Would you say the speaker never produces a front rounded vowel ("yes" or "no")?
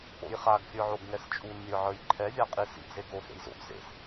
yes